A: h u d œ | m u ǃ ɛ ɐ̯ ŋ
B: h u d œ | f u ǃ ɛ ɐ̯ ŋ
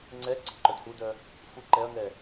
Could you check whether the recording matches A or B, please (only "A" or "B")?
B